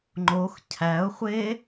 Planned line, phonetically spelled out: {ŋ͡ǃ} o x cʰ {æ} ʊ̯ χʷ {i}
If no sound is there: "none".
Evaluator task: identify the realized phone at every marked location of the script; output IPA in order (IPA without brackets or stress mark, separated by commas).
ŋ͡ǃ, æ, e